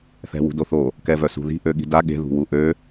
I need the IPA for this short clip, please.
θɛ̤wṳdoθo | kɛvœsṳði̤ ʔøɠi̤da ɠe̤ ðṳwuʔø

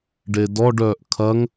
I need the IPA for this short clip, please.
ɖedɔɖ œʔkʰɐŋ

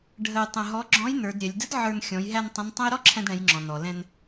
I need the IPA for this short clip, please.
ɖʱə˧jtˤə̃˧ɦɔ˧˥ ɡ͡ǁɔ̃˧˥jnə˞˩˧dɾʲɛ˩˧lʲ də˧˥d ʕə˞˧n xʲɔ̃˩˧jɦæ˧n tˤə̃˧˥ntˤə̃˥j ɾɔ˥ǁʰɛ̃˧dɽɛ̃˩˧jŋ͡ǁɔ̃˩ nɔ˩lɛ̃˧n

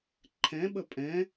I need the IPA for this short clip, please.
ǃʰɛ̃ɓə pʼɛ̃

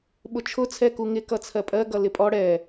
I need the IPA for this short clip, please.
ɓʊt͡ʃʰʊ t͡sʰɛkuŋɪ kʌt͡sʰɜpʼɜ ɡʌlɪpʼɔ ɽɛ

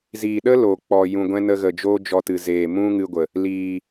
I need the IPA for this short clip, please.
ziː˨ɗə˦ loː˨k͡pɔ˨ jũ˨ɡʷɛ̃˦nə˧ɣə˨ d͡ʒoː˦d͡ʒɔ˧tɨ˨ zeː˨mũ˦ŋɨ˧ɡʷə˨ | liː˨

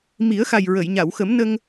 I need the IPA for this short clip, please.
mi˨˩˦ə̯xa˨˩jɹə˨˩˨jɲa˨˩˨w xə˨˩˦m nə˧ŋ

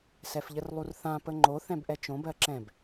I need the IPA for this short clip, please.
sɛfʎərlˠurθã pəŋ͡ǃo θɛ̃bʔɛt͡ʃõb ɜǁɛ̃b

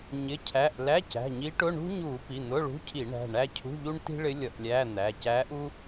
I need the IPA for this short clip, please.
ɲɪ˩˧˩cʰæ˩˧˩ʔ læ˧˥˧cæ̤˩˧˩ɲi˧˥ʈʊ˧˥˧ ɳṳ˥ɲu˧˩˧ pi˩˧˩n̪ʊ˧˥˧ɭṳ˧˥˧cʰi˧˩˧ ɳæ̤˩˧˩ɳæ˥ cʰṳ˧˥˧ʎu˥ɳ ti̤˥ɭɪ˧˥ lʲʌ˧˩˧ʔlʲæ˧˥˧n̪æ˩˧˩ cæ˧˥ʔu˥

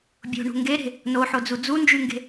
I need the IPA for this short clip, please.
bʲo̤ɳṳ ŋɡeɾe̤ | noħod͡zu d͡zund͡ʒyŋɡe̤

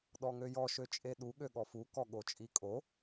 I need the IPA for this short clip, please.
ɗɔŋøjɔ ʃøt͡ʃʼeɗu ɠøɠɔfu kɔɠot͡ʃʼikʼo

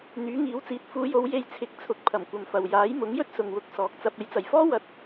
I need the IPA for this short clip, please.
n̪yː˨˥ŋiː˨˥wt͡siː˨˥t̚ fuː˨˧jo˨˧w je˧jt͡sʰɪ˨˥k̚ t͡sʰʊ˨k̚pʰɐ˨˩m kʷɐ˨mfɐ˨w jaː˨˥j mʊ˨˥ŋjɵ˥t̚sʊ˨ŋwʊ˨˥k̚ sɔː˨k̚t͡sɐ˧p̚ e˨˧jt͡sɐ˨jfɔː˥ wɐ˧t̚

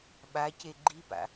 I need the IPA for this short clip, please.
ɓace ɡ͡ǃipa̰

